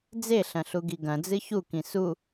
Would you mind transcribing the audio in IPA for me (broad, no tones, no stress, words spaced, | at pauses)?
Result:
d͡zeɬɐ̃ɬuɡi ɡɐ̃d͡zɨ çukĩ su